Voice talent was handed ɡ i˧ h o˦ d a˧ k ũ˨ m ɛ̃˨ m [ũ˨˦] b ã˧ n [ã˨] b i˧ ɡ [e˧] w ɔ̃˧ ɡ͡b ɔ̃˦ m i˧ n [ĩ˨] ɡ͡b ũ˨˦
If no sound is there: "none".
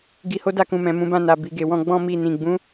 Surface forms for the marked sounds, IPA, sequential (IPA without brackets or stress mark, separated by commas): ũ˨˦, a˨, e˧, ĩ˨